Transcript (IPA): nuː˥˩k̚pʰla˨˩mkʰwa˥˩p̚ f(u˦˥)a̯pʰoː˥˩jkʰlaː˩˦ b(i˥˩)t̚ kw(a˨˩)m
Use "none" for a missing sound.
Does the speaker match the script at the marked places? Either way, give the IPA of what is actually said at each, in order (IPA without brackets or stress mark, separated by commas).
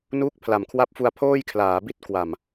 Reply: u˧, i˥˩, a˨˩